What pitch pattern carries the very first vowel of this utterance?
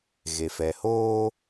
low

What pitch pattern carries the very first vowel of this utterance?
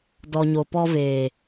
low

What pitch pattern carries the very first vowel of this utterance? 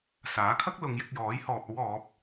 rising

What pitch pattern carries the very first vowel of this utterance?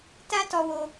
high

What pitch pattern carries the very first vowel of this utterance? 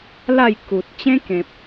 falling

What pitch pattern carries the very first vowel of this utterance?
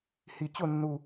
low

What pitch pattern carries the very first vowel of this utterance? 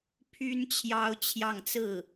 high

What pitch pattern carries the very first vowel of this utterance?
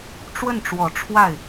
falling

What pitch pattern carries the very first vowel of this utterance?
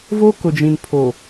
high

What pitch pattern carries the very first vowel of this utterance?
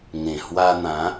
low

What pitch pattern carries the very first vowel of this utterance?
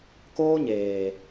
high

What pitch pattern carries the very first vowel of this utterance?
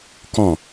falling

